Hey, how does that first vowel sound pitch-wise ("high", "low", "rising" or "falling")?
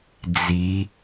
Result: rising